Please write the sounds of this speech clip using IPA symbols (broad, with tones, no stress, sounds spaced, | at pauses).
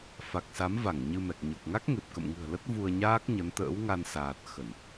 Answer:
f a˨˩ k̚ s a˨˦ m v a˧˩ ŋ ɲ ɨ˧ m ɛ˨˩ k̚ ɲ o˨˩ k̚ ŋ a˦˥ k̚ ŋ e˨˩ p̚ k ə̰˧˨ m ŋ ɨ̤˨˩ ə̯ l ə˦˥ t̚ v u˧ ə̯ ɲ aː˦˥ k̚ ɲ ə˨˦ n t̪ ə̰ː˧˥ w ŋ a˧ n s aː˨˩ t̚ x ə˧˩˨ n